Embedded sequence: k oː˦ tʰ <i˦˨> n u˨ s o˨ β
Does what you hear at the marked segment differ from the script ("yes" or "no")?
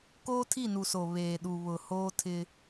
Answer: no